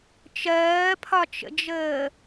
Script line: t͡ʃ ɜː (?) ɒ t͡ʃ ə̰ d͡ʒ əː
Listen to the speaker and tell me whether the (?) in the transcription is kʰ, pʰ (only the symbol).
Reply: pʰ